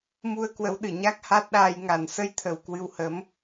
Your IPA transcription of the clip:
mu˧ə̯kwə˨˦w ɗɨ˨˩ ɲa˦˥k̚ha˦˥t̚ɗaː˧j ŋa˧˩nsə˧jt̪ʰə˨˩w kwɨ˧whə˨˦m

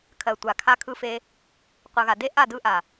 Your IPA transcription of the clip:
kʰɜ˨tʷa˨kʰa˧ kʰɯ˧fe˧ | qʷɯ˨ɣa˨de˦ ʔa˦˨ dɯ˧ʔa˨

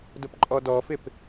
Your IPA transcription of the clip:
dʊpǃʼɔdɔfɪp

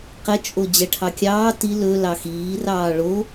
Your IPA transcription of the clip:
qɛt͡ʃʼo d͡ʑɛʈʰɑkʲɑː ti lɵ lɑxiːrɑː ɭo

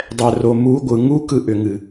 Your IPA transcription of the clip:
dˤɛ˨ro˨ mu˨˦ɡʷɯ˨ŋu˦ kɯ˦ʔʏ˨ŋɨ˨

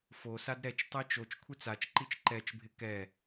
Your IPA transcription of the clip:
fosad ɾɛt͡ʃtˤɛ t͡ʃot͡ʃ kʷʰɪt͡sat͡ʃǃit͡ʃ ǃɛt͡ʃbʱɪ kɛ

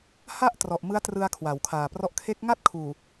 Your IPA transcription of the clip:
ha˥˩ʔ trɔ˨˩ʔmɯ˦˥a̯trɯ˧a̯ kʰwa˩˦wkʰaː˨˩prɔ˦˥ʔ kʰe˦˥k̚ ŋa˥˩t̚kʰuː˨˩

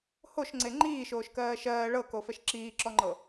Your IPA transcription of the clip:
hoʃŋ͡ǀe ŋ͡ǃiːʃoːʃkɜː ʃɜː ɭɤkofɛʃ ǁiːǁɔŋ͡ǃɤ

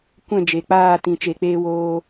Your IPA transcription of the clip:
kʷɛ̃˦˨d͡ʒe˨k͡paː˦˨tĩ˨ t͡ʃe˨k͡peː˧ woː˧

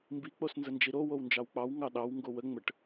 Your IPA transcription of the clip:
mbi k͡posnzənd͡ʒiɾo wownd͡ʒɑwk͡pɑw ŋɑɗɑw ŋɡowə ŋ͡məʈ

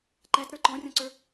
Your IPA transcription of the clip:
ǃætɾə˞ ǃɔ̃rʲɔ̃ǀə˞

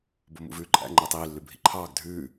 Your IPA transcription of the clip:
bomṵvʉːǃʼæ̰ ŋ͡ǃeːtˤiː lːʉbʱḭǃʰɑːɡ dʱʉː

